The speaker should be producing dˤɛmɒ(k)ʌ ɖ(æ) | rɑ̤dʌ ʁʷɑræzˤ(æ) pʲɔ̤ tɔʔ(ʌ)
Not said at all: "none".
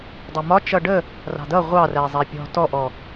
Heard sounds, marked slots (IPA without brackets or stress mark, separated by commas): t͡ʃ, ə, æ, ɔ